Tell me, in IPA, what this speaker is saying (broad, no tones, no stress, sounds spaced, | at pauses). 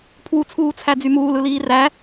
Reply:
pʰ w u t͡sʰ uː t͡sʰ æ d͡z y m uː l ɯ l iː r æ